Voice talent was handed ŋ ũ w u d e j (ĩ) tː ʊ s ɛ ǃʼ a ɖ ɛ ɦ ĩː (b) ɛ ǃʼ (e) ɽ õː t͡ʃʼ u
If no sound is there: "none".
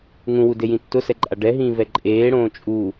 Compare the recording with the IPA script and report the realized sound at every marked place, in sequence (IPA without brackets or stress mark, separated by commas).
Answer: ĩ, v, eː